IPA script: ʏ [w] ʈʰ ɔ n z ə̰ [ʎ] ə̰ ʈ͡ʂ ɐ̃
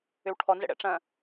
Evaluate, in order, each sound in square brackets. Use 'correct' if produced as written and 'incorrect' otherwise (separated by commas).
correct, incorrect